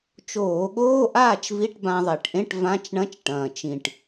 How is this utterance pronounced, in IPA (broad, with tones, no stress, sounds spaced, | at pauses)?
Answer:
t͡ʃ oː˧˩˧ ɠ oː˧˥˧ ʔ aː˥˨ t͡ʃ v i˧˥˧ ʈ b ã˧ ðˤ e˧˩˧ ʈ ʔ ẽ˧˥˧ ʈ v ã˧˥˧ t͡ʃ ɳ ɐ̃˧˥˧ t͡ʃ ʈ ɐ̃ː˨˩ t͡ʃ ĩ˨˩ ʈ